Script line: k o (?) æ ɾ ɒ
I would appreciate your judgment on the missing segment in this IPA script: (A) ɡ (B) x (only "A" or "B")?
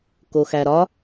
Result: B